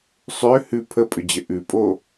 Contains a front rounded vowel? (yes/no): yes